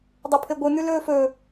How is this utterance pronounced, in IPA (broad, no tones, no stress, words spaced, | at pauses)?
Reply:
dˤɐpʰeɡʷɨn̪ʉ lɵːfɵ